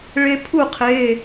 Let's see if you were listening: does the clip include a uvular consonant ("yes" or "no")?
yes